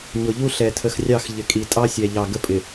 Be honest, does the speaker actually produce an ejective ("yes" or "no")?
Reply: yes